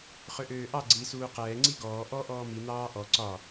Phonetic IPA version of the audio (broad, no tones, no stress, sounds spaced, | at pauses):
χ ø ʔ øː ʔ ɑ ɡ͡ǀ i s uː q ɛː ŋ͡ǀ i ɡ ɔː ʔ ɔ ʔ ɔː m i n̪ ɑː ʔ ɔ ǀ ɒ